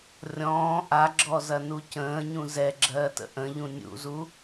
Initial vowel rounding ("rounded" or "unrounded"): rounded